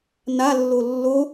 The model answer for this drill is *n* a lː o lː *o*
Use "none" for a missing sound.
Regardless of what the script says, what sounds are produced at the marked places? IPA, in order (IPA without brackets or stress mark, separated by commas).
n, o